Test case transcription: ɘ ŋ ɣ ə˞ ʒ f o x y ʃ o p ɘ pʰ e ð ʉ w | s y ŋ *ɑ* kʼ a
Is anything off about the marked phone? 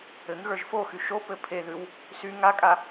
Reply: yes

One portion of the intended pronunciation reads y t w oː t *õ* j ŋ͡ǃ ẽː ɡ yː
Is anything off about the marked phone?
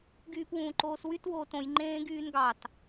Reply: no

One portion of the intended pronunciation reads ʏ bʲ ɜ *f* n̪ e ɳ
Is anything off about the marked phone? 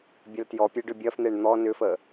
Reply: no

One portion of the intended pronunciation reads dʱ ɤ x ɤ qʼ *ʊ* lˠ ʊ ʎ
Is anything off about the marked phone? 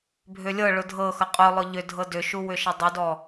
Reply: no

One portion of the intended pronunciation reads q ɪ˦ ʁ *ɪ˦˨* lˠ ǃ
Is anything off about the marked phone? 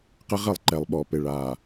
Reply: no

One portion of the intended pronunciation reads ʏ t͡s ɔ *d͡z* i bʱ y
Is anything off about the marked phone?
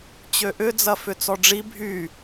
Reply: yes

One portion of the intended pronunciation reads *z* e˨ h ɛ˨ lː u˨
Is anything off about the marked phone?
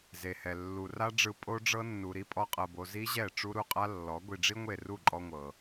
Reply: no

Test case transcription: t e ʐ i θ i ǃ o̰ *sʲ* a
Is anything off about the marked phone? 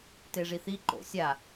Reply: no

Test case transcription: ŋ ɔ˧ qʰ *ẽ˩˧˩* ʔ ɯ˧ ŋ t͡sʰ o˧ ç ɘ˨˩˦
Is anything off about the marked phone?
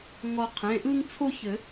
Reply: no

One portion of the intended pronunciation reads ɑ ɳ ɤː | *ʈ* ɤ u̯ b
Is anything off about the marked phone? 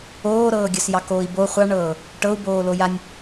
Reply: no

